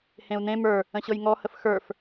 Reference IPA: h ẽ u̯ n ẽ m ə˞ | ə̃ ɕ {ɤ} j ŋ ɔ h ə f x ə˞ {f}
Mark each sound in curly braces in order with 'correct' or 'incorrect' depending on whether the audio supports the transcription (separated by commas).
correct, correct